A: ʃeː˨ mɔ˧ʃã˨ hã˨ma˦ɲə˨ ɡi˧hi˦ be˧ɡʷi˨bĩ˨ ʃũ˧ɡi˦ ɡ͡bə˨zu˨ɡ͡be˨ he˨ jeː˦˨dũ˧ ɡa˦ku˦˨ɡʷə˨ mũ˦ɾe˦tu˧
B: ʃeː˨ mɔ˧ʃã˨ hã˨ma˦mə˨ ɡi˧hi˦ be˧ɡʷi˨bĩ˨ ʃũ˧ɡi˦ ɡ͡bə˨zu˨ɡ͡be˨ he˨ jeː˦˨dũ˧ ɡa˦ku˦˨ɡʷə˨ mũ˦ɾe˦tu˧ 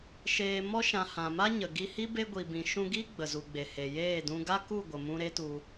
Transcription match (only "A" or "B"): A